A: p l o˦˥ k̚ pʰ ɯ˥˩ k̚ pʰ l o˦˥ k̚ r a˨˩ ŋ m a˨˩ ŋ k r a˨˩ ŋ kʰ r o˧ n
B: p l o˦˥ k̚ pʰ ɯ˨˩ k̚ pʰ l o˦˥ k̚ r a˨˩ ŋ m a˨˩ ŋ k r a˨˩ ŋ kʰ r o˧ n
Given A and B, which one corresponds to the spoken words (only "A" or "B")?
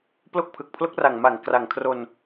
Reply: B